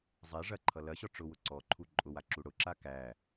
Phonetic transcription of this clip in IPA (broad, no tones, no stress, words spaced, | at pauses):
zˤɛ ʐɐǃʰʌ lɐɕɔ ʈ͡ʂʊwʊ ǀɔǃʰu ǃʼʊwaǁu ɽʊǁa kæ